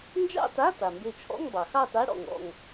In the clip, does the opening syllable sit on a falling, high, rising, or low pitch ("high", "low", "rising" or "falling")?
falling